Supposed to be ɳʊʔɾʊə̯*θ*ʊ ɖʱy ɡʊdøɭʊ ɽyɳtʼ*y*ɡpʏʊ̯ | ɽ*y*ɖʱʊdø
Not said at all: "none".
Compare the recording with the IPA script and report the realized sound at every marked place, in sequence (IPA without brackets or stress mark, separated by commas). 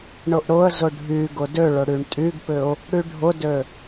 z, y, y